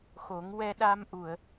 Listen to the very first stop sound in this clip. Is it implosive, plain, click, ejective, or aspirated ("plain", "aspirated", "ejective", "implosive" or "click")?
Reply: implosive